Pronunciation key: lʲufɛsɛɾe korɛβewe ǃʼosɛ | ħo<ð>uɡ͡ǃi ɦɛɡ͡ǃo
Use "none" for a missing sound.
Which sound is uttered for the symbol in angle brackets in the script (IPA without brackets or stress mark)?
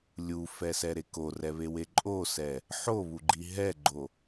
β